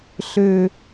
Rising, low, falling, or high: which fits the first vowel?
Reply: falling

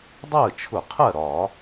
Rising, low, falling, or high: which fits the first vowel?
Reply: falling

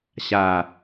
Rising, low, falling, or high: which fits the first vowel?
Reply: low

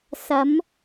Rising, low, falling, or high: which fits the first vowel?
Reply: rising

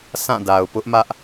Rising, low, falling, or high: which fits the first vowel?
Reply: falling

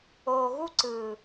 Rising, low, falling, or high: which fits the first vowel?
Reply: low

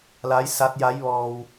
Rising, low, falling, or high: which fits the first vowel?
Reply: rising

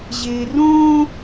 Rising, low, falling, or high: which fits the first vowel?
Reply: low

